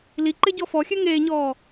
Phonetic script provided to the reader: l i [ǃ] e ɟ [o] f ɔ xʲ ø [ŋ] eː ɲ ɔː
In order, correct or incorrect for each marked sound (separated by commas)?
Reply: correct, incorrect, correct